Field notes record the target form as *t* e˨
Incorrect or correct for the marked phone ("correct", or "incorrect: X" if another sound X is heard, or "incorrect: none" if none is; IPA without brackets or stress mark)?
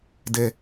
incorrect: d